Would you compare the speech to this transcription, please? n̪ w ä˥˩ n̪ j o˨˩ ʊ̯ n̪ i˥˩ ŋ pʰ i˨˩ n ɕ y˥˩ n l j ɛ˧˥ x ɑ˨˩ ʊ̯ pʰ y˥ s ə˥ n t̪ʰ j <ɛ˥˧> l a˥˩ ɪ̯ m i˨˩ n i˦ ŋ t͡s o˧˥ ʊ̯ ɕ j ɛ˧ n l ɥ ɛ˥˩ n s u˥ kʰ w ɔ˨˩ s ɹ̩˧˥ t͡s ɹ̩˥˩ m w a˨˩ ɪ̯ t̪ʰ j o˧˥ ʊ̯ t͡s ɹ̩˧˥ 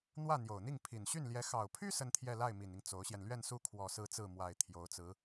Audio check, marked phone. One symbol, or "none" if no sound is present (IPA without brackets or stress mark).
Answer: ɛ˥˧